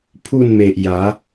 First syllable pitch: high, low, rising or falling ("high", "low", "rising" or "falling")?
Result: falling